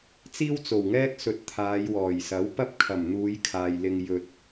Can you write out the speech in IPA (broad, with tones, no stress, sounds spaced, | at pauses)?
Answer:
t͡s iː˥ w t͡s o˨˩ w ŋ ɛː˥ k̚ s ɵ˨ t̚ t̪ʰ aː˨˧ j w ɔː˨˩ j s ɐ˨˥ w p ɐ˥ p̚ kʰ ɐ˨˩ m n̪ uː˨˧ j kʰ aː˨ j l ɪ˧ ŋ j ɵ˨ t̚